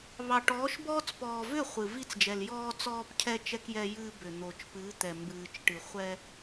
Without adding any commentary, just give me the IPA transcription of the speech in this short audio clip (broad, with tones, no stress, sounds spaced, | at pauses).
β ɑ˨ ʈ ɔː˨˦ ʃ b ɔː˦ t͡s p ɔː˨ v ʏ˦˨ χʷ ɨ˨ v i˦ t͡s d͡ʒ ɛ˨ l j ɔː˦ t͡s ɔː˦ p cʰ ɛ˦ t͡ʃ ɛ˦ k j ɛ˦ j ɨː˦ b ʏ˨ n̪ oː˨ t͡ʃ p ɨː˨˦ t̪ ɛ˨ m b ɨː˨ t͡ʃ ʈ ɨ˨ χʷ ɛ˦